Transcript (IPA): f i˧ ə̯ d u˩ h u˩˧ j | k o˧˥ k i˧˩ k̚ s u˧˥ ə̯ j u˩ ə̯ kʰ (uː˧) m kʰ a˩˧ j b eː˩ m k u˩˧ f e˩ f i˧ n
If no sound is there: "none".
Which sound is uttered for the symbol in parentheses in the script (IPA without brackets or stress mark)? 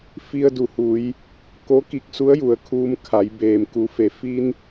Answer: uː˧